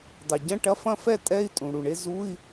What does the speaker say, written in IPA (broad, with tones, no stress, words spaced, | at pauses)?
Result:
dˤe˩ɟɐ̃˧˥˧ʈɐ˧˥˧ fɐ̃˥˧fɛ˥˧tʼɛ˧˥˧i̯ tʼũ˩ ɽu˩ɳe˥˧ zu˧˥˧i̯